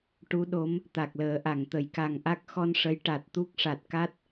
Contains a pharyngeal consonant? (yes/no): no